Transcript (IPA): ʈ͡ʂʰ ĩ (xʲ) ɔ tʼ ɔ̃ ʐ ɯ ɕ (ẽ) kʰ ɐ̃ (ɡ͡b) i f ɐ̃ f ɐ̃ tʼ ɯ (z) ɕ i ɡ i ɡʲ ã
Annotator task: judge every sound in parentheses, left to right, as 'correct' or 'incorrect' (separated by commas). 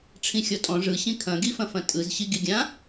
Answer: correct, incorrect, incorrect, correct